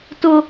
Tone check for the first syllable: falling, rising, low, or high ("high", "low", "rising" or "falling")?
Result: high